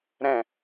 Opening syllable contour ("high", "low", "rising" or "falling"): low